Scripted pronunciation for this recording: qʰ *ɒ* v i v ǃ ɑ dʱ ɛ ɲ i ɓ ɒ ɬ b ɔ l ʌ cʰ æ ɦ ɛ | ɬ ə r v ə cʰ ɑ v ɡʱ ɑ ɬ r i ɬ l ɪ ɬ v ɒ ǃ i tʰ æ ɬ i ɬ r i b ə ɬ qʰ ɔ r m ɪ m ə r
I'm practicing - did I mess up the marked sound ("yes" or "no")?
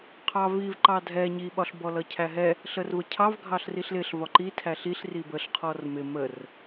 yes